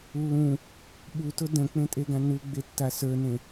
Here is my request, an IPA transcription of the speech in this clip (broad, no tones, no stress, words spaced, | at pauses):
lːũ | ɓutʊ də̃k͡pẽtʼeɡã nuɡ͡betːa sə˞nẽ